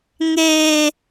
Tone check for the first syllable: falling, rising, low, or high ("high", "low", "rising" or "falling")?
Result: high